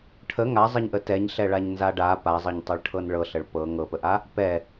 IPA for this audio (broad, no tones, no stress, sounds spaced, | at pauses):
ʈʰ ə ŋ a zˤ ə ɲ ʔ ə t ɛ ɲ ɬ ɛ ɭ a ɲ n z a ɖ a p a zˤ ɤ ɲ tˤ ɤ ɭ ʈʰ ɤ n ɭ ɤ ɬ ə ɭ p ɤ ŋ ɤ p ə ʔ a | p ɛ